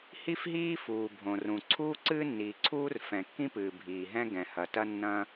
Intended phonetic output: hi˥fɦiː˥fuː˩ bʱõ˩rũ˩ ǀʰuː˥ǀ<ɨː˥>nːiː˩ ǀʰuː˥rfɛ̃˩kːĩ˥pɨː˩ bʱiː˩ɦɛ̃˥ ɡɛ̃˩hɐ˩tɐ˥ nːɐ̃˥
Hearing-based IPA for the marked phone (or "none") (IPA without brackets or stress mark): ɨː˥